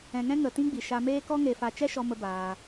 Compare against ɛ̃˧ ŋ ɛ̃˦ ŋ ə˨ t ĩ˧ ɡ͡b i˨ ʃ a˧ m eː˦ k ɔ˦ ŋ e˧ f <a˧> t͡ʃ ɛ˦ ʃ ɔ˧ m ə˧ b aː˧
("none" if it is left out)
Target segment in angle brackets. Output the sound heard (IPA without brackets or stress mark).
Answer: a˧